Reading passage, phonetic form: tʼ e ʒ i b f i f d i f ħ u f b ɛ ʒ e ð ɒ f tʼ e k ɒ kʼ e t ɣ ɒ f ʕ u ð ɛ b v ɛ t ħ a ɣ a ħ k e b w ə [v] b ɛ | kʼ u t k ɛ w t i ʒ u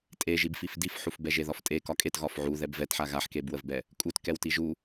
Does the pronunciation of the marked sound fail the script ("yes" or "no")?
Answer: no